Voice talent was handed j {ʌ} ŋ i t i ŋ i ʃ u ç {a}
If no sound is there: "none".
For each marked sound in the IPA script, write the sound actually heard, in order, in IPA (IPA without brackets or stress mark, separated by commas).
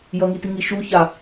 ʌ, a